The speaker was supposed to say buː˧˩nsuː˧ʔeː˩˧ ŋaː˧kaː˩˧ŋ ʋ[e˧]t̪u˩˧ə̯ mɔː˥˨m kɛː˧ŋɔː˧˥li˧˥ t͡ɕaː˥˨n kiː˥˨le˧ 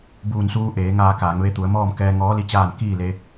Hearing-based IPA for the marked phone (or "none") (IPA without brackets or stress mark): e˧